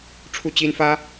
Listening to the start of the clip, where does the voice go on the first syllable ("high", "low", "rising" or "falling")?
falling